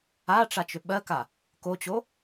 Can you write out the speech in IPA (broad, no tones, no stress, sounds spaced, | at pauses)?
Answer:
a ʈ͡ʂ a t͡ʃ ʏ ɓ ɜ k a | k o t͡ɕ o